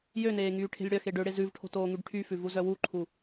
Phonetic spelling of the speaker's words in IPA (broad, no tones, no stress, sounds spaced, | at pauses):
j ø n eː ŋ yː ʈʰ e̤ lʲ ɽ œ x e ɖ ø ɽ e z ʉ v ʈʰ o̤ t oː ŋ y ɖ ʈʰ y f ʉ v u z œ w u ǃʰ u